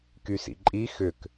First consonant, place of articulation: velar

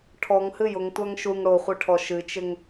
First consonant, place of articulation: retroflex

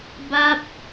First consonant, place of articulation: labial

